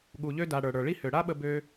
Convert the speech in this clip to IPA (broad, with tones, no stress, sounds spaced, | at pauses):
ɠ u˨ ʎ ø˧ d a˨ ɽ ə˞˨ ɽ ə˞˨ ɭ i˦ h ø˨ ɽ a˦ ɓ ə˧ b ø˦